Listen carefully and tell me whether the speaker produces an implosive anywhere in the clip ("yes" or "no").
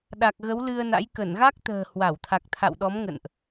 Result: yes